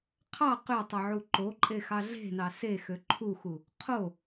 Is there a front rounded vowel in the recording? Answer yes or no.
yes